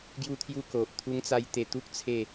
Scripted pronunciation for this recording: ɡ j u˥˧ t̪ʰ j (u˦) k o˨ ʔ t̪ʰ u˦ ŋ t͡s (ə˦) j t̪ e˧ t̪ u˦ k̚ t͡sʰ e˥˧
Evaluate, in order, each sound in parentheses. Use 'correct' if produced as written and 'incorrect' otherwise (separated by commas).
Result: incorrect, incorrect